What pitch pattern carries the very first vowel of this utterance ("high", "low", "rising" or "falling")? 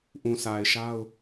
low